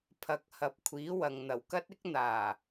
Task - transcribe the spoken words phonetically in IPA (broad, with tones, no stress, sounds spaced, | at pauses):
pʰ ɐ˨˥ k̚ h ɐ˨ p̚ kʷʰ iː˨˥ w ɐ˨ ŋ n̪ ɐ˨˩ w k ɐ˥ t̚ ɪ˥ k̚ n̪ aː˨˩